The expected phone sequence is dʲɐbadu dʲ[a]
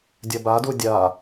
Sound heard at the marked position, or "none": a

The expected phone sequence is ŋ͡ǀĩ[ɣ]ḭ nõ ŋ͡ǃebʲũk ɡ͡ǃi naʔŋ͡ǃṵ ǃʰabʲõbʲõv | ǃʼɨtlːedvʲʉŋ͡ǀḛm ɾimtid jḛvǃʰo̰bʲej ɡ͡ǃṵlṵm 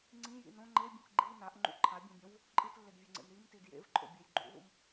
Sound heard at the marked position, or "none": j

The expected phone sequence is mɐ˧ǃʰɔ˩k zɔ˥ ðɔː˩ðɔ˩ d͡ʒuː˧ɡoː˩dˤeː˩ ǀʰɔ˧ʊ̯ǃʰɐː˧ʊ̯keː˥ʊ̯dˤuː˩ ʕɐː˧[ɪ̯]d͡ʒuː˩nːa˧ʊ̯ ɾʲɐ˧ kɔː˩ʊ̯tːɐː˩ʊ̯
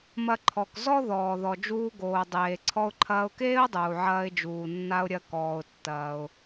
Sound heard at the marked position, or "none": ɪ̯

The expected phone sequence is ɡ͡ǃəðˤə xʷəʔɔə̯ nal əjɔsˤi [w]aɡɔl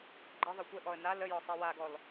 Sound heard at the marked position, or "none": w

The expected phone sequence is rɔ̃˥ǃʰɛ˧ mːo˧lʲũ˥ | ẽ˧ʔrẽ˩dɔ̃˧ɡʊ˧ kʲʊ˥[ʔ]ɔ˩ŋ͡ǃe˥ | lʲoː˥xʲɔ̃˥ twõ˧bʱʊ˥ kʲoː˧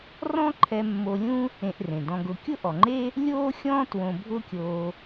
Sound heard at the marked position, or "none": ʔ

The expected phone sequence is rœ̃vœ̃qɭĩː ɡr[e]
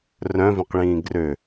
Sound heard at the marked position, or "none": ø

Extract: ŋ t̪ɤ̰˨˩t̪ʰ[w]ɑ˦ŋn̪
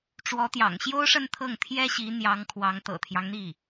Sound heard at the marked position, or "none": j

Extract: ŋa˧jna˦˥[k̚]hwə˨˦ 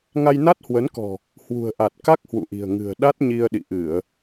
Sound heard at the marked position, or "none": t̚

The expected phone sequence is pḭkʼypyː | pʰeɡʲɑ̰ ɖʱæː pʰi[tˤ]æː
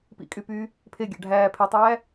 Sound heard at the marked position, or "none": tˤ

